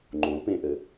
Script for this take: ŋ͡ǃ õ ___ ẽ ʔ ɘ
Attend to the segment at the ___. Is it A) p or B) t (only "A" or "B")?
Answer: A